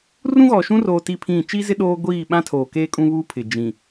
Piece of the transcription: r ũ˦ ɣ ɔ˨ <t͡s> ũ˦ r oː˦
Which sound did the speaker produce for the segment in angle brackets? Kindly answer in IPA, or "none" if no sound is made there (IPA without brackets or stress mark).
ʃ